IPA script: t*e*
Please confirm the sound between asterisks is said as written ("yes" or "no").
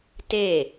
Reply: yes